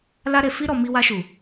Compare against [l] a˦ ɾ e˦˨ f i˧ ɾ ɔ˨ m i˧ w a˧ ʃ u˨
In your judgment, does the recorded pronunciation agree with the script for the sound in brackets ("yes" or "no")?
yes